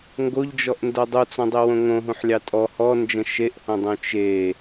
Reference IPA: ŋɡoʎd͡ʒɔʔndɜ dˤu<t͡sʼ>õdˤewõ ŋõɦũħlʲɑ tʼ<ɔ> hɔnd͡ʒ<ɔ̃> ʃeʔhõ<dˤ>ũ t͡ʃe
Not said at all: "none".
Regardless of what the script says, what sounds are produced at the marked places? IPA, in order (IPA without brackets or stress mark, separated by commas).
t͡s, ɔ, ə̃, dˤ